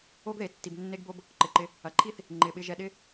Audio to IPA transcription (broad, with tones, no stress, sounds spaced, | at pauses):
o˦ ɡ ð e˩ tː i˩ b nː e˦ ɡ b o˦ b | ǃ ɪ˩ ǃ ɪ˨ | ɐ˩ ǃʰ i˥ θ | ŋ͡ǃ ɪ˩ ɓ ɪ˨ ʒ ɛ˨ ɗ ɪ˦